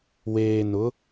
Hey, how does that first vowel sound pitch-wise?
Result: low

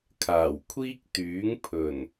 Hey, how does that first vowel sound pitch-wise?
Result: low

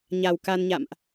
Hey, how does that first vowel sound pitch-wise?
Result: low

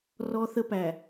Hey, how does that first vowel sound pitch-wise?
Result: high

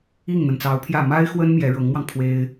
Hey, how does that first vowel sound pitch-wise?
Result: falling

